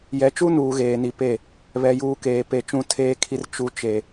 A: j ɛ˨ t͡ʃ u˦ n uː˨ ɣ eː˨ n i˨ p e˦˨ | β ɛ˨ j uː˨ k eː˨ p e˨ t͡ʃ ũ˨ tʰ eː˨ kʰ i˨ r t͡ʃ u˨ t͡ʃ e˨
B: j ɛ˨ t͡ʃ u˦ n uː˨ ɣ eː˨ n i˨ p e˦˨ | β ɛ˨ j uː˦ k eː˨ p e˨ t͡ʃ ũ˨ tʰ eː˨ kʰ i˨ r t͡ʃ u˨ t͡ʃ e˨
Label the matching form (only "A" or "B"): A